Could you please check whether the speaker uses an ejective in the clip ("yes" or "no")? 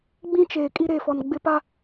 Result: yes